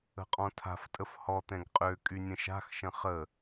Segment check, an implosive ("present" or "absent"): absent